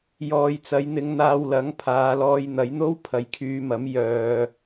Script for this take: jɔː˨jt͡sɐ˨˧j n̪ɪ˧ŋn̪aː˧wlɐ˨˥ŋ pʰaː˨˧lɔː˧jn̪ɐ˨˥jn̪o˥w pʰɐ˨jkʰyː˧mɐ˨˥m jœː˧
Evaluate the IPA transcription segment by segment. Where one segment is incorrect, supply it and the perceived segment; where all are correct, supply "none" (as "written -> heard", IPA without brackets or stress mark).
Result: none